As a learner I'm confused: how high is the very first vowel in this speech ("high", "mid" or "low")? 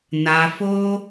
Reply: low